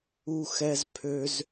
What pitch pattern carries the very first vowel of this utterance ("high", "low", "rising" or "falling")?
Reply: high